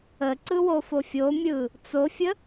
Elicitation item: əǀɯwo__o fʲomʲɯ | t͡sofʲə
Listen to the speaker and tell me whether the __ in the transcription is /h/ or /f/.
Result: f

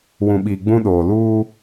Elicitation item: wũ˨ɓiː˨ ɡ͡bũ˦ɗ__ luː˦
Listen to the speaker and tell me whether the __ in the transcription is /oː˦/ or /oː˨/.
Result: oː˨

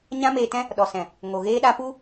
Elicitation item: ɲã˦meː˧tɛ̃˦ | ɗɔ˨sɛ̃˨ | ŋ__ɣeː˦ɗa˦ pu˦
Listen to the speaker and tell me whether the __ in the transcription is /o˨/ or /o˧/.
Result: o˨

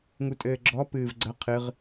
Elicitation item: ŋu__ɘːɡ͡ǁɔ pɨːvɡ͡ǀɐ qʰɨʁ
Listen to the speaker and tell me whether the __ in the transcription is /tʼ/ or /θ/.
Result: tʼ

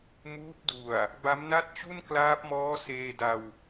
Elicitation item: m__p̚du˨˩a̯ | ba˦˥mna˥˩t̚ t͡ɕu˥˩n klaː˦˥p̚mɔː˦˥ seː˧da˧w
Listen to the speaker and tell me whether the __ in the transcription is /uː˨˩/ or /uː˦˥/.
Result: uː˦˥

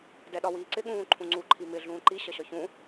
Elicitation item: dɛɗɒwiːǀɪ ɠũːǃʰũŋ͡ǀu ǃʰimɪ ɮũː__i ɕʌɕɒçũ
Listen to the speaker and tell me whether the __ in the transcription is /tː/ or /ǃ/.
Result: ǃ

